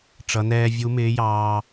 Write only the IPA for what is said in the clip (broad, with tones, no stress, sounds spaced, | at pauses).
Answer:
ʈ͡ʂ ʌ˧˥ n ɛː˥ vʲ u˧˥ m ɪː˧˥ j ɑː˧